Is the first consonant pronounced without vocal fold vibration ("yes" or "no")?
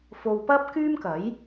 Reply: yes